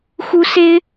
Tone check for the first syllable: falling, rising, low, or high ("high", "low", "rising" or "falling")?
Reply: high